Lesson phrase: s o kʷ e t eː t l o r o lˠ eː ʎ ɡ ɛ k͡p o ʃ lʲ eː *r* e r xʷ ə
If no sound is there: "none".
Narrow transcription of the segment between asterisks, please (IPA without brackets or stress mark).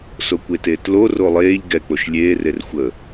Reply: r